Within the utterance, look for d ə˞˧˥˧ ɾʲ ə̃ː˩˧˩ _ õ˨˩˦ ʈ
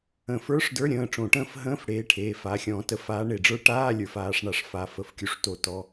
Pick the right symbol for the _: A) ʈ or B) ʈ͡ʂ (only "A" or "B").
B